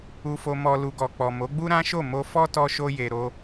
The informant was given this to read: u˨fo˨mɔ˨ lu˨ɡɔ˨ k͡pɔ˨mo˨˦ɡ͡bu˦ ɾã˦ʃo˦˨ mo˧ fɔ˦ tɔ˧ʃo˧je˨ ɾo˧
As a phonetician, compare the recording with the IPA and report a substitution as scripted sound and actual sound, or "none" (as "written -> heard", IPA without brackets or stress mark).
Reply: none